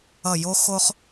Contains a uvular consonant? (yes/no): yes